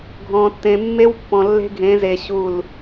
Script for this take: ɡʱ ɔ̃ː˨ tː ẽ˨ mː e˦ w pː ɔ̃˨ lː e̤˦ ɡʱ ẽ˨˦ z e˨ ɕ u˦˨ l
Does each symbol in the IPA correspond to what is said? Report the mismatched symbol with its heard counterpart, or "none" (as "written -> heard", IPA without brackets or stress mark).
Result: none